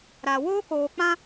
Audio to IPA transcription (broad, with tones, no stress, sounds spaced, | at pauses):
ɾ a˨ w oː˦ k oː˨ k͡p ã˦